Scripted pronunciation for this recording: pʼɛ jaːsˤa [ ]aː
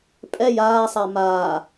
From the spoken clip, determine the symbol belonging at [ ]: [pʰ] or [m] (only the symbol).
m